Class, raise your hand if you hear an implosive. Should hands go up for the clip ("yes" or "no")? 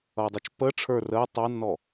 no